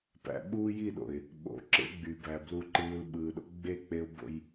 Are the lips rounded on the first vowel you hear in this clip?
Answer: no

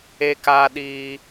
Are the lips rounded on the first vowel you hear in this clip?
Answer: no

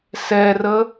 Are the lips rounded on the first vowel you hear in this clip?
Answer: no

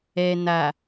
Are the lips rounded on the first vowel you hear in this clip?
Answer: no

